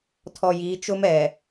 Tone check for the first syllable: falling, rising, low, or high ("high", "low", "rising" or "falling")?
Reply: low